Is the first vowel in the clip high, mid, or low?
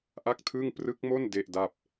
low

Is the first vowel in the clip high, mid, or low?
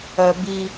mid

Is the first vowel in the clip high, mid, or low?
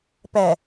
low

